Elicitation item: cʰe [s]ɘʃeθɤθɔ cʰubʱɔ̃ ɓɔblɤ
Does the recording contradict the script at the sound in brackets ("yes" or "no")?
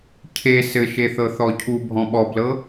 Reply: no